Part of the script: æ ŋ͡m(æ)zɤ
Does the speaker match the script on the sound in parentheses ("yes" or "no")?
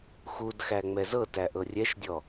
no